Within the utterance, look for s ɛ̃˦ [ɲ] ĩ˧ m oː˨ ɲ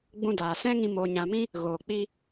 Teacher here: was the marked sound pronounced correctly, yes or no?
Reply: no